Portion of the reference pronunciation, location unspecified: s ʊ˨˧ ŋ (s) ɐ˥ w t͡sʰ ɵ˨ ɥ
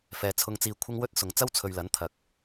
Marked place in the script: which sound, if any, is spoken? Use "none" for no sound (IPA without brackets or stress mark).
t͡s